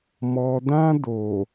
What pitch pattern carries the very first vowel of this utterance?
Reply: low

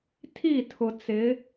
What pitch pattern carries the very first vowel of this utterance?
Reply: falling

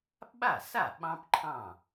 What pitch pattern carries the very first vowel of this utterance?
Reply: falling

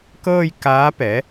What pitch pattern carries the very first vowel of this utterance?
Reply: falling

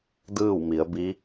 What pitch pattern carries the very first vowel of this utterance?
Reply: falling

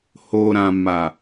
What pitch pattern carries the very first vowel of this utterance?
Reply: low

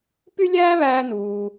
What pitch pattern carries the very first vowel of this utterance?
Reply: high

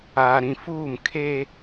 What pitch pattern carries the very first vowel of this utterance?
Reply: low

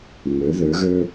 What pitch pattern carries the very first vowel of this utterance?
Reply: rising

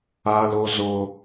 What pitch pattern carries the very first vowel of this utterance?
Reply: high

